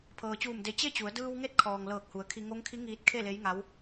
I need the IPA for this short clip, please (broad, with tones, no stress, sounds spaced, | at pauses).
pʰ ɤː˩ t͡ɕ uː˧˩ m d e˧˩ t͡ɕ e˥˨ t͡ɕ u˩˧ ə̯ d ɯː˧ w ŋ e˧˥ t̚ kʰ ɔː˩ ŋ l ɤː˧˩ k̚ h u˩˧ ə̯ kʰ i˧ ŋ o˧˥ ŋ kʰ i˧˥ ŋ iː˧ t̚ kʰ e˥˨ l e˧˥ j ŋ a˧˥ w